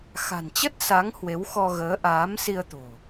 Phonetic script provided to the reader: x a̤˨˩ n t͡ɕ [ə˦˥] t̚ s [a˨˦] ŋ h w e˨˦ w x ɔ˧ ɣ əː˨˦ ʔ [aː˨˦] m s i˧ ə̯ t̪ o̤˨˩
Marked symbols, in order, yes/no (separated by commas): yes, yes, yes